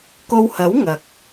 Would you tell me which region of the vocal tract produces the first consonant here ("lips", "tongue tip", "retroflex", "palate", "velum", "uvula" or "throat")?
velum